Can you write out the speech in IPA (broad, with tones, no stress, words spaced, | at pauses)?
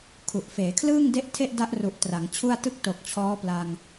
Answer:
kʰu˨˩ʔ feː˩˦kʰlɯː˥˩ŋde˦˥ʔ tʰe˥˩ʔda˦˥ʔ ru˨˩ʔ tra˩˦ŋt͡ɕʰu˥˩a̯ tɯ˦˥k̚to˨˩k̚ t͡ɕʰɔː˦˥pla˧ŋ